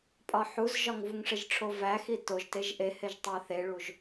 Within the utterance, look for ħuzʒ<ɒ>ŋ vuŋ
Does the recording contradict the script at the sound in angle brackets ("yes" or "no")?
no